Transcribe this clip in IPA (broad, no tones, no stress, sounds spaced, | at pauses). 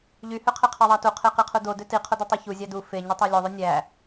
ʎ y h ø qʰ e qʰ ɑ ðˤ ɑ t u qʰ e q i qʰ u d o d ø t i qʰ o d i tˤ ø ç u zʲ ɑ d u f e ɲ u tˤ æ lʲ o ðˤ y nʲ æ